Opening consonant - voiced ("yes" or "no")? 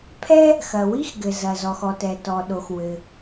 no